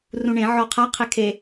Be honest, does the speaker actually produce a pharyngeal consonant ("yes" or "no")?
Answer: yes